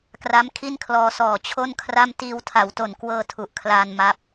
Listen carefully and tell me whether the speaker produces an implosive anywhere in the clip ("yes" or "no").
no